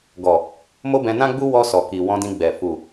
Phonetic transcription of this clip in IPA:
ɡ ɔ˨ | m o˦ b ɛ̃˧ n ã˦ ɡ͡b u˦ w ɔ˧ s ɔ˨ k i˨ w ɔ̃˧ d ĩ˧ ɡ͡b ɛ˨ f u˨

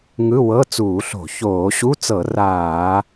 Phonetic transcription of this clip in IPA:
ŋ ɯ˧˥˧ w ɤ˧˥˧ t͡s uː˧˩˧ ɬ o̤˧˩˧ ç oː˧˩˧ ɕ u˧˥˧ t͡s ɤ˧˩˧ r aː˧˩˧

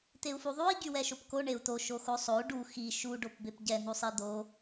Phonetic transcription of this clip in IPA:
t̪ e u̯ f u ðˤ u i̯ ɟ y w ɛ ʃ o p k o ɳ e u̯ t̪ o ʃ o x o sˤ o u̯ ɖ u x i ʃ u ɖ o p b e p ɟ ɛ n̪ u sˤ i d̪ o

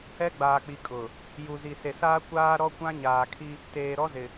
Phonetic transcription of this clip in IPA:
ɛ˦ ɡ͡b aː˨ k͡p i˨ kʼ ʊ˨ | j u˨ z i˨ s e˨ s aː˦ kʷ aː˦ ɾ ɔ˦ kʷ ã˦ ɲ aː˨ kʰ i˦ | t eː˨ ɾ ɔ˦ z ɪ˨

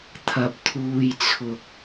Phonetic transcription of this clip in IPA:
t̪ʰ ɐ˧ p̚ t̪ʰ uː˧ j t͡sʰ ʊ˧ k̚

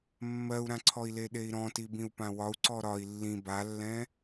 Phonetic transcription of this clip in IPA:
mː ɜ u̯ ɾ ã ǀʰ ɔ i̯ l e ɗ e i̯ ɾ ɔ̃ t i b ĩ u̯ p ã w ɒ u̯ ǀ ɔ ɾ ɒ i̯ lː ĩ b a lː ɛ̃

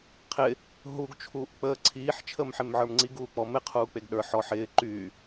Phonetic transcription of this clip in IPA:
qʰ ɪ | ɦ u ɡ t͡ʃʰ uː ʔ k͡p əː ǀʰ iː ħ t͡ʃʰ əː m ħ e m ʕ ə˞ m ŋ͡ǀ i ɡ uː k͡p ɔ m ɪ qʰ uː k͡p e ɡ ɗ ə˞ ħ ɔ ħ ɪː ǃ y

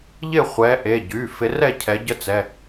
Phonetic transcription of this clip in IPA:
ʎ ɪ˥˨ χʷ ɛ˨˦ ʔ e˩˧˩ ɟ y˩˧˩ f ɪ˨˦ r ɛ˥˨ cʰ ɛ˨˦ ɟ ə˦˥ t͡s ɛ˩˧˩

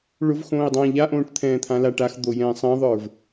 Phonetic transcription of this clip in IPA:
ɭ ʊ v x õː i̯ dˤ ãː ʎ a ʔ õː ʈ t̪ʰ ɛ̃ː t̪ʰ ã l a ʈ a x d̪ o j ɛ̃ː sˤ ɛ̃ ðˤ ə˞ v

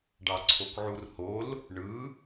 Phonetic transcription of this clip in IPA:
ɖ ɑ ǀʰ o k ʕ u r h o l | ɳ ɯ

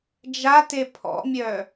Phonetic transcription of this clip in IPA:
d͡ʒ a t e pʰ ɔ̰ mʲ œ

